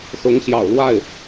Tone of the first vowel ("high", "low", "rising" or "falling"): rising